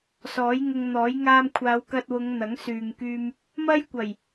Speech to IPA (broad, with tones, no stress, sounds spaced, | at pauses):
s ɔː˨˥ j ŋ ʊ˧ ŋ n̪ ɔː˨˥ j ŋ aː˧ m kʷʰ aː˨˧ w k ɐ˧ t̚ w ʊ˨˧ ŋ n̪ ɐ˨˥ ŋ s yː˨ ŋ k yː˧ m | m ɐ˥ j kʷ ɐ˨˩ j